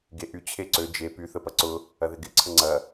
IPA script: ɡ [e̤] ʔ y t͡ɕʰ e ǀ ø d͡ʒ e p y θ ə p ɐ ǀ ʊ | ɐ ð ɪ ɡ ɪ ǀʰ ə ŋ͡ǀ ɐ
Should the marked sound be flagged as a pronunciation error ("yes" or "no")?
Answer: yes